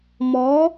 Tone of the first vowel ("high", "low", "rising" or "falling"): rising